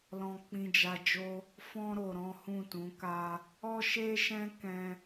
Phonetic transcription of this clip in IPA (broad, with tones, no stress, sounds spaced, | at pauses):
l ɔ̃˦ k͡p ĩ˧ d͡ʒ a˧ d͡ʒ o˦ | f ɔ̃˦ ɾ o˧ ɾ ɔ̃˦ h ũ˦˨ t ũ˨˦ k a˦ | ɔ˦ ʃ e˦ ʃ ɛ̃˦ k ɛ̃˦